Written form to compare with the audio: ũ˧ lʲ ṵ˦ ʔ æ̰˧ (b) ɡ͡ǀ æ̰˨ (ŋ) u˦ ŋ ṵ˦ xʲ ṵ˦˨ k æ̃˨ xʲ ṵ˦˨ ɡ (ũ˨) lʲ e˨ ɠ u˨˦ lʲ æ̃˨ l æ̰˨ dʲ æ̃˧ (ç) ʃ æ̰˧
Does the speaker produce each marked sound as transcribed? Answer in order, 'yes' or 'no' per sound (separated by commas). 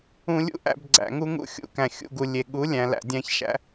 yes, yes, no, yes